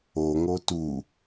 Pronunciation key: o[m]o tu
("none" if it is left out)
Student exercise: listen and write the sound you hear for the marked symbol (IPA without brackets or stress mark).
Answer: ŋ